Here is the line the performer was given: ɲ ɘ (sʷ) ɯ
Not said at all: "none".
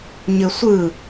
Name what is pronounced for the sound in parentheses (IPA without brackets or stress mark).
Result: sʷ